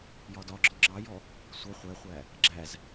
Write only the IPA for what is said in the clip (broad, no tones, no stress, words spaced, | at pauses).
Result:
jɒdɒɡ͡ǁɔ ŋ͡ǁɑjɔ | sʷʌ χʷɛχʷæ | ɡ͡ǁæz